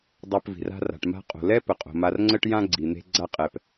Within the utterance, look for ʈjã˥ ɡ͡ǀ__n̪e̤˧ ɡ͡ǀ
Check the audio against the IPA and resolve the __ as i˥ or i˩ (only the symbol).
i˩